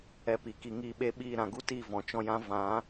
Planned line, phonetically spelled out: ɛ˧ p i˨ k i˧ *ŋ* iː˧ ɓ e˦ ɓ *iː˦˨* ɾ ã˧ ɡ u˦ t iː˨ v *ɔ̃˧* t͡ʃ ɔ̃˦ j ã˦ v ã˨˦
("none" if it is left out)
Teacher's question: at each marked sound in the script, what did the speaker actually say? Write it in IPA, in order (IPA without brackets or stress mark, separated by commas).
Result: ŋ, iː˦˨, ɔ̃˨